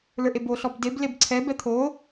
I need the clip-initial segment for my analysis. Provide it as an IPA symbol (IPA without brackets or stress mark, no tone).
l